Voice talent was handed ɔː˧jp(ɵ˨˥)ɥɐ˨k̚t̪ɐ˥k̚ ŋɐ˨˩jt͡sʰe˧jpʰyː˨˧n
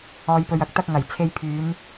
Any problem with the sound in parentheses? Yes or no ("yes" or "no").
yes